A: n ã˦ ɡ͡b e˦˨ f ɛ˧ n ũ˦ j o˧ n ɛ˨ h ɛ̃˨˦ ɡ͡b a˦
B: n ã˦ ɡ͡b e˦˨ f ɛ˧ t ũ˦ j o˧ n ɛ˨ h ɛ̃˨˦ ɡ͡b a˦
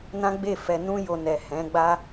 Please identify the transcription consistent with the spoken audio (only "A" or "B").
A